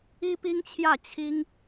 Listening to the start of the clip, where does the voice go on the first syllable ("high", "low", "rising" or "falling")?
high